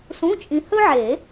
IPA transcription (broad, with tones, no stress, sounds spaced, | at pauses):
s ũ˧˥˧ t͡ʃʼ ĩ˧ h ɵ˥ ʕ e˨˩˦